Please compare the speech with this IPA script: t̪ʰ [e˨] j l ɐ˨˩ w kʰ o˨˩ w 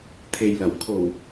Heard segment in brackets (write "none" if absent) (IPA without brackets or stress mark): e˨